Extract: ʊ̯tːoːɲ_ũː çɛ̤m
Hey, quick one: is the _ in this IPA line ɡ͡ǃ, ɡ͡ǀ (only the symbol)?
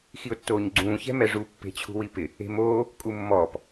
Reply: ɡ͡ǀ